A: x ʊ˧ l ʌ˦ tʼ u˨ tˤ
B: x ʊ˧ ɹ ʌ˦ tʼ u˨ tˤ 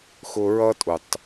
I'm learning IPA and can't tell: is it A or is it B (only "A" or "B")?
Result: B